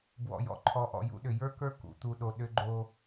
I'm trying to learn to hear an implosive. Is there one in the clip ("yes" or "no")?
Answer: yes